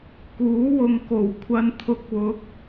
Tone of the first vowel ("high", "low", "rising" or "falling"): rising